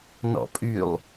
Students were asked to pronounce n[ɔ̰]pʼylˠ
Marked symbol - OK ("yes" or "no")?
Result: yes